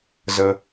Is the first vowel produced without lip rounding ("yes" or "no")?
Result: yes